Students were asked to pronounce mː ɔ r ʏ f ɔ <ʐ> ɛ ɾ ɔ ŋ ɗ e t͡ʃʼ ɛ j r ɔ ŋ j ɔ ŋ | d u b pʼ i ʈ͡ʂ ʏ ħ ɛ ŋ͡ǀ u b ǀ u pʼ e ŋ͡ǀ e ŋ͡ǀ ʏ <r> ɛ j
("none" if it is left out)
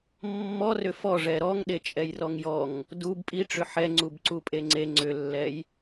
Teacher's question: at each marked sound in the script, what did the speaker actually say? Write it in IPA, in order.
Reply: ʐ, lː

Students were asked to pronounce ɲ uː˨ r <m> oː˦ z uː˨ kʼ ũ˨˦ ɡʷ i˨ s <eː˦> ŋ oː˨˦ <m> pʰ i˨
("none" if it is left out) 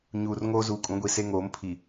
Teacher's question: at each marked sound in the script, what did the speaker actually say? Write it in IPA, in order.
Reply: ŋ, e˦, m

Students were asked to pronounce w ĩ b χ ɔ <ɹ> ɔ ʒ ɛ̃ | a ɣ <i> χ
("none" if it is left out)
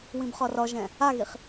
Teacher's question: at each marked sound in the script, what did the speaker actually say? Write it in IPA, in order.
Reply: r, i

